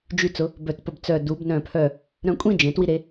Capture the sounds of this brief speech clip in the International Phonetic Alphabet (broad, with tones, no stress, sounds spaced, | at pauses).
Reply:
d͡ʒ y˧ t͡s ʊ˩˧ | b œ˧˩ t p ə˧ b t͡s œ˧˩ d u˩˧ b n œ̃˧˩ pʰ œ˧˩ | ɾ œ̃˧ kʷʼ ĩ˥˧ d͡ʒ ẽ˩˧ t w i˧ ɾ e˩˧